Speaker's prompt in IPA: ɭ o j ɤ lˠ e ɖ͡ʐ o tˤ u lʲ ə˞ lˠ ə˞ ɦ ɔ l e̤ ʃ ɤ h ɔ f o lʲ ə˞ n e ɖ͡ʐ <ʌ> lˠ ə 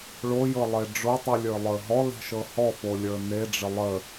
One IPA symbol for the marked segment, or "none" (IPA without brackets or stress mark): ə